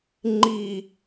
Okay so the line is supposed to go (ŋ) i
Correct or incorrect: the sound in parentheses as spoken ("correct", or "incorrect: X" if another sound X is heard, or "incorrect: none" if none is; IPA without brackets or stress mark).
incorrect: ŋ͡ǃ